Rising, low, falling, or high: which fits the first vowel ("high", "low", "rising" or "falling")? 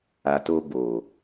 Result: low